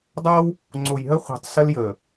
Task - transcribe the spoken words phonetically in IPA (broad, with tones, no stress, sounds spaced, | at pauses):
dˤ ʌː˦ w | ŋ͡ǀ o˨ j ɦ ə˦ χʷ ɛ̤˨ tˤ s ə˦ l j əː˨